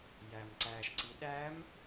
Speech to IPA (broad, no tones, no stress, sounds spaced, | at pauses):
j æ m ǀ æ ʃ ǀ i ɗ æ m